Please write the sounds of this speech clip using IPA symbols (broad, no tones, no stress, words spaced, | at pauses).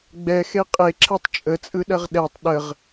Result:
ɡ͡bɛxe qʼeǁʰɛtˤ t͡ʃʼət͡sʼɯɗɐʁ ɗɛtˤ ɗəʁ